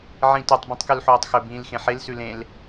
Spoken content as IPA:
ʕĩtotˤ bĩtˤkʉlħoːtˤxɵ bĩːlxẽħel sʉlẽl

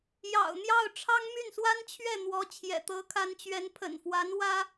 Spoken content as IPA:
jɑ̰˨˩ʊ̯n̪jɑ˥˩ʊ̯ ʈ͡ʂʰɑ˥ŋmy˥˩nswa˥nt͡ɕʰɥɛ˥˩ n̪wɔ˧˥ t͡ɕʰjɛ̰˨˩t̪ɤ˧˥kʰa˧˥nt͡ɕɥɛ˧˥n pʰə̰˨˩nfwa˧˥n wä˥

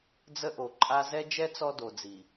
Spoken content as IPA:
d͡zə˦ʔo˨ǃʼa˦ zɛ˦d͡ʒɛ˦ t͡sɔ˦do˨d͡zi˨

